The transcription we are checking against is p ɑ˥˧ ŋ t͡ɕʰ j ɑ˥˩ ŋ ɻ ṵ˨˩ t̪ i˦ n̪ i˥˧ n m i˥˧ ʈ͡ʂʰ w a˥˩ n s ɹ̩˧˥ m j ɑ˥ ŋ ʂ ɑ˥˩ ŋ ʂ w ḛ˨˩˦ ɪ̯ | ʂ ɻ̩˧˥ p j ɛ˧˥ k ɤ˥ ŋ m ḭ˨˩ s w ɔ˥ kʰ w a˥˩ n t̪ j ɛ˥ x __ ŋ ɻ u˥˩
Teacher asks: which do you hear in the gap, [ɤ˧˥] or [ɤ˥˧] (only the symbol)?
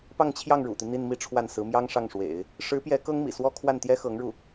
ɤ˧˥